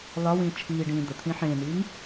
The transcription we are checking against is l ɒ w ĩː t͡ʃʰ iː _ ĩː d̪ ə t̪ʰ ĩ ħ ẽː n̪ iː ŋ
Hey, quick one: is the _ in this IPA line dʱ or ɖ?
ɖ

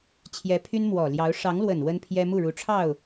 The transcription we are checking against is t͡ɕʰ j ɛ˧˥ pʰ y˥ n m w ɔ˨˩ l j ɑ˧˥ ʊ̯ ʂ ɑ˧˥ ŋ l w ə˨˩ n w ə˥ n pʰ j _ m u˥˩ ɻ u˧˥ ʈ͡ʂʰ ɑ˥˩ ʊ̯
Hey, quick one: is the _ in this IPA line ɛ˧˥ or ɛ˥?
ɛ˥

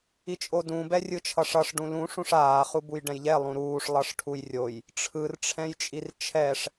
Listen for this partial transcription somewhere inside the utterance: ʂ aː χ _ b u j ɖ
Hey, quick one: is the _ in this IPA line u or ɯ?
u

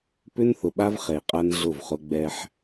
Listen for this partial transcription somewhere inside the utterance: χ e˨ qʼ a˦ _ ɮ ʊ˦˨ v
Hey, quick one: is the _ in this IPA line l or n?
n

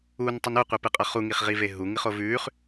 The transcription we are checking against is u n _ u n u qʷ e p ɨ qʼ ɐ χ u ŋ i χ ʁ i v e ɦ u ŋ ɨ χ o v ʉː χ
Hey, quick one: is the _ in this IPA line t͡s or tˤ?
tˤ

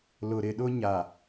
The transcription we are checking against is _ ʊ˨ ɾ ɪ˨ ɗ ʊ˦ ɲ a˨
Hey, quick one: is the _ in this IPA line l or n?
l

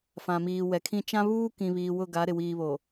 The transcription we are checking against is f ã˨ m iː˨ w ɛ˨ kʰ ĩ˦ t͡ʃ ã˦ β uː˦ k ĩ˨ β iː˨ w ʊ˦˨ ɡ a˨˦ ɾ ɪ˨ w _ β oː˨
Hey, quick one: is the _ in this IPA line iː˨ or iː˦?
iː˦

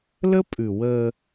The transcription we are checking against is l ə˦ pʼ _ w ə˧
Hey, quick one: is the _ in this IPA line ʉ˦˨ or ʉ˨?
ʉ˨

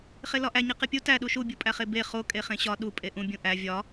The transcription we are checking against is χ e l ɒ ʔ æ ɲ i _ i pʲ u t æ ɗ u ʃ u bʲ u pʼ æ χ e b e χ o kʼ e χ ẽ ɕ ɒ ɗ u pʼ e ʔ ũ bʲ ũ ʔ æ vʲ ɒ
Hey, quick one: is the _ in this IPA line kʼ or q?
q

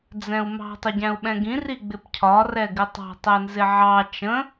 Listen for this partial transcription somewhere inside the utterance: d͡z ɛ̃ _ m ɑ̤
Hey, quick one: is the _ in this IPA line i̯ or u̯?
u̯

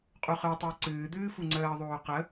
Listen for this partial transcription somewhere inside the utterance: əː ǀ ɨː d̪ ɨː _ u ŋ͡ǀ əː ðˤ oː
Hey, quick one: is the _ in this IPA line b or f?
f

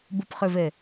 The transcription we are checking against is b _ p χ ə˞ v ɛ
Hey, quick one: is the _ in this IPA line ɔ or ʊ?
ʊ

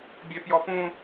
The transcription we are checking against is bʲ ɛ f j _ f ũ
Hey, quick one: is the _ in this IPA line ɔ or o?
ɔ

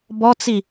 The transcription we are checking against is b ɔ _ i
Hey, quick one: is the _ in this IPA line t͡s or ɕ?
t͡s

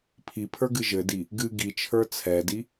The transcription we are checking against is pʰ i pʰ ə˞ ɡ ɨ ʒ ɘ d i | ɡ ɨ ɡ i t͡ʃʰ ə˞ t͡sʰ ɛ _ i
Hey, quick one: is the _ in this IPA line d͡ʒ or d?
d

